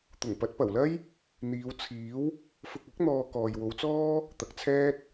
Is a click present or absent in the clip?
absent